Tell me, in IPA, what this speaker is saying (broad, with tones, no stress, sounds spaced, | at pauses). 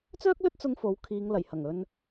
t͡s œː˥ k̚ l ɵ˥ t̚ t͡s ʊ˧ ŋ f o˨˥ w kʰ iː˨˧ ŋ l ɐ˨˩ j h ɐ˨˩ ŋ ɵ˧ n